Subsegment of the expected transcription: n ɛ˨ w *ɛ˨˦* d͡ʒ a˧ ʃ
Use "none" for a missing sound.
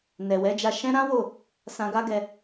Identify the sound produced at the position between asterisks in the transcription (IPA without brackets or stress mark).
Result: ɛ˨˦